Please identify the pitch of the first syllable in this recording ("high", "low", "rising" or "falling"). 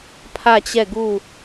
falling